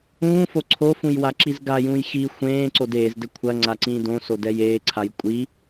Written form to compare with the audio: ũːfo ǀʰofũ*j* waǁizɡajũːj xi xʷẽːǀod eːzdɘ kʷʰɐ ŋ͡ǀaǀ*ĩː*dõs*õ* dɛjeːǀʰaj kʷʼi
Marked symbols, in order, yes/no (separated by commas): yes, yes, no